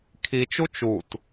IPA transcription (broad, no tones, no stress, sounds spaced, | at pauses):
kʰ i t͡ʃ u t͡ʃ u t